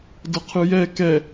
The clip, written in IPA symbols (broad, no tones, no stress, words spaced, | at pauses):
dɤqʰɯjɛ kɛ